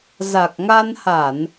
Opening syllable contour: low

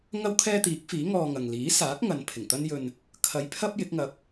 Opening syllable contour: high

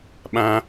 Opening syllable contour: high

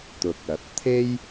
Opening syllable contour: rising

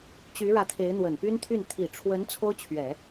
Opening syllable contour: rising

